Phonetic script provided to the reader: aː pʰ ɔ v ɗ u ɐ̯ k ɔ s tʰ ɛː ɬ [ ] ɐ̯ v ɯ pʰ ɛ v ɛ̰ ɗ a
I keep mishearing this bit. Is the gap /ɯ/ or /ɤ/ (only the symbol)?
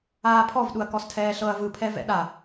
ɤ